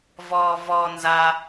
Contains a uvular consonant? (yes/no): no